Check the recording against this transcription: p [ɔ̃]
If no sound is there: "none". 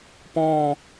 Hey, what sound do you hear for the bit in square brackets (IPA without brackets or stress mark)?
ɔ̃ː